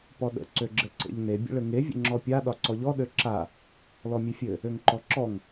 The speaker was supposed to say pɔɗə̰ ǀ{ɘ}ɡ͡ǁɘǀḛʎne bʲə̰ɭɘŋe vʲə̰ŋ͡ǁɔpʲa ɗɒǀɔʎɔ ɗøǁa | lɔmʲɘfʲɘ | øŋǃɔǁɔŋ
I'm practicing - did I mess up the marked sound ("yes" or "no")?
yes